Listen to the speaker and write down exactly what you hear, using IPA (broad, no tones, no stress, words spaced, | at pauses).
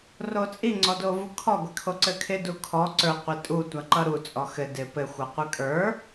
rot͡sʼi ŋ͡ǀɔdovukʰɔ ɡʷɪkʰoǀɘkʰɪ dukʰɔ ǀə˞ qʷitʼu tʷaǃʌɾu t͡sʼɔxɘ dɪpɘ xʷʌqʷɘkʼə˞